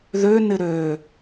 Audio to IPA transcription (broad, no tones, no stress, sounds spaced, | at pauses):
ð ø n ɪ ɾ ø